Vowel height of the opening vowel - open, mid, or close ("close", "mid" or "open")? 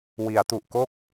close